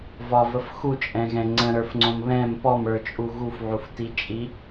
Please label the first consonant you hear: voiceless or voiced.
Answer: voiced